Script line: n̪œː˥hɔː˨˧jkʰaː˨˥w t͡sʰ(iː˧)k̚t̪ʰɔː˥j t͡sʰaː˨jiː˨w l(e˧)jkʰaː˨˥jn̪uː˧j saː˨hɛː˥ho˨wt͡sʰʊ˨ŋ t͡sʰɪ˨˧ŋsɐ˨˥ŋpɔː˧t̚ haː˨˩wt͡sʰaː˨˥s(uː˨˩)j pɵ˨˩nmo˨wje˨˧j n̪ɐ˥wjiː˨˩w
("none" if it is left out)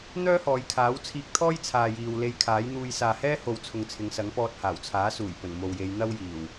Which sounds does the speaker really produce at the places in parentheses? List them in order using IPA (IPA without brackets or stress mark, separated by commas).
iː˧, e˧, uː˨˩